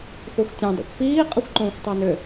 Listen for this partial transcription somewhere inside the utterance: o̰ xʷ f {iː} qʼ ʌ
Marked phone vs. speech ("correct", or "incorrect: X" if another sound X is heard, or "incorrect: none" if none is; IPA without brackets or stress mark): correct